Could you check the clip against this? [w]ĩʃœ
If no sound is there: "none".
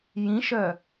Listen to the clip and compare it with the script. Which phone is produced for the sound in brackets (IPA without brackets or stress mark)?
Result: j